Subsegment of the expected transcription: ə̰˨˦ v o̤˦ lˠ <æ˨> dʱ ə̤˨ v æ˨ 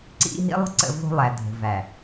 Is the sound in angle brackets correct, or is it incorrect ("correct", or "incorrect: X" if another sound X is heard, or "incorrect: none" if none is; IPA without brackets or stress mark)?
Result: correct